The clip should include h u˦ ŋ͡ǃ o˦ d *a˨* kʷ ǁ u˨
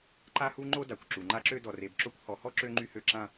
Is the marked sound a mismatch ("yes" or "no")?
no